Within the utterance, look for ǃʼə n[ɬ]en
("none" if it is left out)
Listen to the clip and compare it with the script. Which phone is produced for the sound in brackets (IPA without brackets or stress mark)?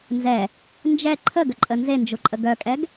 z